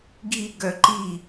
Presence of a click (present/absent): present